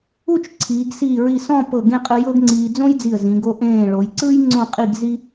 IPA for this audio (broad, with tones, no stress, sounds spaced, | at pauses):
u˥˧ t͡ʃ ǀʰ iː˩˧ ɡ s iː˧˩ ɹ i˧˩ s ɔ̃˥˧ p ɤ˧˩ ɡ ẽ˥˧ qʼ ɯ˧ j ɤ˥ ɡ ŋ͡ǀ iː˧ d͡z õ˥ j d͡z i˧˩ ə̯ z ĩ˩˧ ɡ o˧ ʔ ẽː˧˩ ɭ o˩˧ j ǀ ɯ˥ j ŋ͡ǀ õ˥˧ qʼ i˥˧ ɡ z i˥